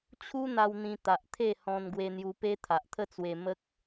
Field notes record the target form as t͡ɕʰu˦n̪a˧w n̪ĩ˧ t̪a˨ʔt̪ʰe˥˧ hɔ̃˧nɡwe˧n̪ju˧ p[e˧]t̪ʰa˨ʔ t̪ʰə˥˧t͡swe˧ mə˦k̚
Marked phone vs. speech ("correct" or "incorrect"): incorrect